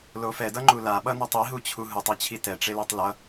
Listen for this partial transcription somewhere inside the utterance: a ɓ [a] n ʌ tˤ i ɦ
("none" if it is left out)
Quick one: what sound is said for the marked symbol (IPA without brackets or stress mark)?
ʌ